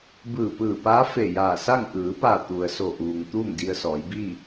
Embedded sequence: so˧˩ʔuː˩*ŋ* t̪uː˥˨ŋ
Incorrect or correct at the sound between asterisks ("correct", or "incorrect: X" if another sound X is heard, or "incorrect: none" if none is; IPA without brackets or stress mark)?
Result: correct